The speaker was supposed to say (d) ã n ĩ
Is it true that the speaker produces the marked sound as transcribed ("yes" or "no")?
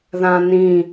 no